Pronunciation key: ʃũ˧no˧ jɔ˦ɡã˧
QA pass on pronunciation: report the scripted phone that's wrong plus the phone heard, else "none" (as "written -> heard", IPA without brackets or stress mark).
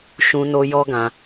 none